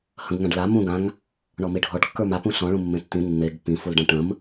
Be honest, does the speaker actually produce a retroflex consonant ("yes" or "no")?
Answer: yes